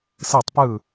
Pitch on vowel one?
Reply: falling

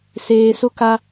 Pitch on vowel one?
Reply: low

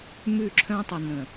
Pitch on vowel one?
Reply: falling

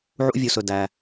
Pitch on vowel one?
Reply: high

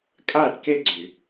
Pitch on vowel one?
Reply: falling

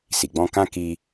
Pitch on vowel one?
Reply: low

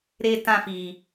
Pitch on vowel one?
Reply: high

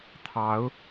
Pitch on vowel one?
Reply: rising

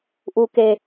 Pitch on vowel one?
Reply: low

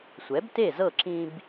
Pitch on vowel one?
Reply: rising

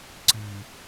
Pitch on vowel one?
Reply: low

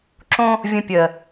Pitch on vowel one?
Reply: high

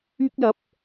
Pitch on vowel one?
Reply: high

